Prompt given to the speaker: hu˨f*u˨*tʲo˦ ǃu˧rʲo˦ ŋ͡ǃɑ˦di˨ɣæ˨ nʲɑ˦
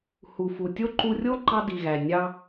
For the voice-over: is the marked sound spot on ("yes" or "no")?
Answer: yes